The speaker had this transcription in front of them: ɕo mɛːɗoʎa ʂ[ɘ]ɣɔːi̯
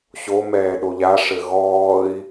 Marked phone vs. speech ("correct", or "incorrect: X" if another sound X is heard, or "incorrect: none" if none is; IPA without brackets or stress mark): correct